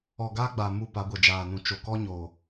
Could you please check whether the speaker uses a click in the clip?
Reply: no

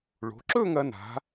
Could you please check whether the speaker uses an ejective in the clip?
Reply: no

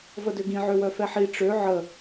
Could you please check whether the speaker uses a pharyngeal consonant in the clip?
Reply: yes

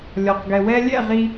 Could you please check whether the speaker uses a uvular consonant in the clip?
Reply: yes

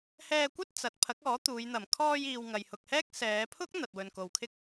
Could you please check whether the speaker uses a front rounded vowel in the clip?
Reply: no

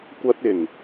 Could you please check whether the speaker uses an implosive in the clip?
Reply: no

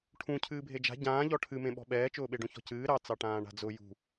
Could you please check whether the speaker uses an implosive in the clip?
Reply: yes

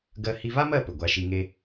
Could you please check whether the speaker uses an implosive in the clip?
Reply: no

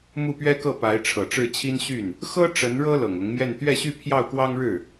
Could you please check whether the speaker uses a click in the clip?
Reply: no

